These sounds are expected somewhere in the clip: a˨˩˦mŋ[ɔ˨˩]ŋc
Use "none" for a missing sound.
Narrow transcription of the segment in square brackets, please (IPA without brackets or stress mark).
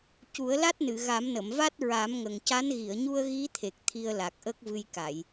ə˨˩